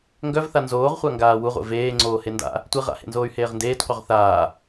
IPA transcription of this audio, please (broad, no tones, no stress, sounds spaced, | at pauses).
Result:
ŋ ɡ œ v θ a n z oː ʁ χʷ a ŋ ɡ aː w u ʁʷ ḛ v eː ŋ͡ǀ oː h e n d a̰ | tʷ i ʁ a̰ h ḛ n z oː y̯ h eː ʁ n d eː t qʷ œ ʁ θ aː